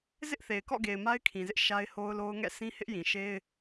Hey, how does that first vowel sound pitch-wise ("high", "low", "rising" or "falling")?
high